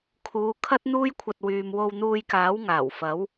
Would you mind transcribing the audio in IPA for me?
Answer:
kʰ uː˨˧ kʰ ɐ˥ t̚ n̪ uː˥ j kʷʰ ɐ˧ t̚ w yː˨ m w o˧ w n̪ uː˧ j k aː˨˥ w ŋ aː˨˩ w f ɐ˨˥ w

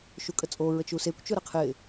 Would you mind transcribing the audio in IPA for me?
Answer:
ʃ u kʼ ə t͡sʼ o ɹ ə t͡ʃ u s e kʷ t͡ʃ ʊ ɾ ə qʰ ɪː

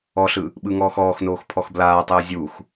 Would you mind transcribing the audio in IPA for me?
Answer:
ɔ ɬ ɯ | ɓ ɯ ŋ ɔː x ɔː x n oː x pʰ ɔ x b l aː tˤ ɯː zʲ u x

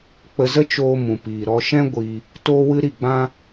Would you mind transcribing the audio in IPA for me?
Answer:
k͡p ə˧ z ə˦ t͡ʃ oː˧ m ũ˨ p iː˨ ɾ ɔ˧ ʃ ɛ̃˦ ɡʷ i˧ | t oː˦ w ɨ˦ ɾ i˦˨ ɡ͡b ã˦

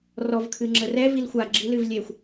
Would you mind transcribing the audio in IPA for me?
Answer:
r ɔ v kʰ ɨ ŋ͡ǁ ə r ɛ v i l xʷ a ɡ͡ǁ ɨ l ɨ v lʲ e xʷ

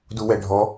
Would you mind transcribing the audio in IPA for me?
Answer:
d u w ɛ ɖʱ ɔ

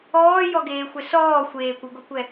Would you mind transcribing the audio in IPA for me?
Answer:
ɔː j ɔ ɡ eː xʷ ɛ s ɔː xʷ eː kʷ u ɡ o kʷ ɛ

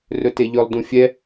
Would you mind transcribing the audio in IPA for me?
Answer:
r ɵ t e ʎ ɵ lˠ d ũ fʲ ɛ

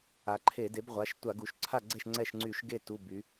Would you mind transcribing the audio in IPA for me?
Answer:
a˩˧ ǃʰ e˧˩˧ d e˩˥ b ʁʷ a˩˧˩ ʃ tʷ a˧˩˧ ɡ u˩˧ ʃ ǀʰ a˥˩ ɡ͡ǀ ɛ˥˩ ʃ ŋ͡ǀ ɛ˥˩ ʃ ŋ͡ǀ y˧˩˧ ʃ ɡ e˥˩ t u˩˧˩ b y˩˧

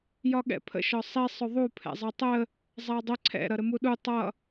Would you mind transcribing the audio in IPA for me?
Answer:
j ɒ ɠ ɛ̰ pʰ ə̰ ʃ ɒ sˤ i sˤ ʊ ðˤ u pʰ ɛ̰ zˤ ʌ tˤ ə | zˤ æ dˤ ə ǀʰ ɛ̰ ɾ ʌ ɾ ə m u ɗ u tˤ ʌ

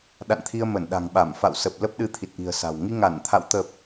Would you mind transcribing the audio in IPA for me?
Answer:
ɗ a̰˧˨ n t̪ʰ i˧ ə̯ m ə˧˩ n ɗ a̤˨˩ ŋ ɓ a˧˩ m f a̰˧˨ w s ə˨˩ p̚ l ə˦˥ p̚ ɗ ɨ˧ t̪ʰ i˨˩ t̚ ʔ i̤˨˩ ə̯ s a̤˨˩ w ŋ i˧ ŋ a˧˩ n t̪ʰ a̰˧˨ w t̪ ə˨˩ p̚

